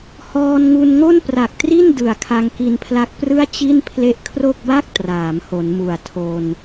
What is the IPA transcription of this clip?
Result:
hɔː˧nŋu˧nŋo˥˩n pra˨˩k̚tri˥˩n dɯ˨˩a̯kʰa˧ŋki˧npʰla˦˥k̚ prɯ˥˩a̯t͡ɕi˥˩n pʰle˦˥ʔkʰro˥˩k̚ba˥˩k̚ traː˩˦mho˩˦n mu˨˩a̯tʰo˧n

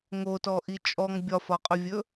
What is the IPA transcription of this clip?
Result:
ŋotɔʔi t͡ʃʼɔŋ bʲɒfɒqʼɵvʲɵ

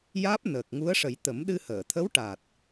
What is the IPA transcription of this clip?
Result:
jaː˦˥p̚nəː˨˩k̚ŋu˧˥ə̯ʂə˨˩˦j t̪ə˨˩˦mɗɨ˧həː˨˩˨ t̪ʰə˧˥wʈa˨˩t̚

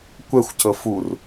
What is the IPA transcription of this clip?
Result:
kʷɛxʷcɤ fur

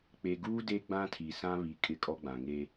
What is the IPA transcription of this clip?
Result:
k͡pe˨ɡuː˦ de˦ɡ͡bã˦tʰi˨sã˦ βi˨ kʼɪ˦˨kʼɔ˦ɡ͡bã˨ ŋe˦

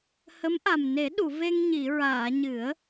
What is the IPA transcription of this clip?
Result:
hə˧˥mʔa˨˩m ne˨˩˦ɗu˨˩˨ ve˧ŋɲi˨˩˨ɹaː˨˩˨ ɲɨ˨˩˦ə̯

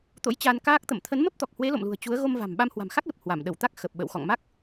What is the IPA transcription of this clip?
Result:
t̪o̰˧˥jt͡ɕa˧nkaː˦˥k̚ t̪ə̰˧˨m t̪ʰə˨˦nmə˦˥p̚t̪ɔ˨˩k̚hwe˨˦ lo̰˧˨mlṳ˨˩ə̯ t͡ɕu˨˦ə̯ ɣo˧mva̤˨˩m ɓa˧mhwa̤˨˩mxa˦˥k̚lə˨˩p̚ hwa˧˩m ɗə˧˩wt̪a˦˥k̚ xə˨˩p̚ɓə̰˧˨w xɔ̰˧˨ŋma˦˥k̚

